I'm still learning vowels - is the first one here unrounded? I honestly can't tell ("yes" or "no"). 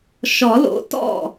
no